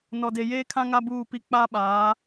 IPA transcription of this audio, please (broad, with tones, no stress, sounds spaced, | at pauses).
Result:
n ɔ˨ d e˨ j eː˦ kʰ ã˦ ŋ a˦ b uː˦˨ p i˦˨ k͡p aː˦ ɓ aː˨˦